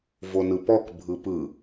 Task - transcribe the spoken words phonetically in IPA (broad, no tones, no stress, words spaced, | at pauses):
vonɯpɔk bʱɯpɯ